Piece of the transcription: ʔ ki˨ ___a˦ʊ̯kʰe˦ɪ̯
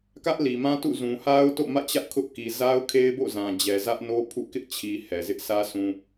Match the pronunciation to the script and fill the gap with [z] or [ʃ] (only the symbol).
z